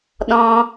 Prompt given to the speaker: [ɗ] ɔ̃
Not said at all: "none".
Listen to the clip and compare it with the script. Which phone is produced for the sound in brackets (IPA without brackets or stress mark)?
ɗ